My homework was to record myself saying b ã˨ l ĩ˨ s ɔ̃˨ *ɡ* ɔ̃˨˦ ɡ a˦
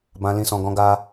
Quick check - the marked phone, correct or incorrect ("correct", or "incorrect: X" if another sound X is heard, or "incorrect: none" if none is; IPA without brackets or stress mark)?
correct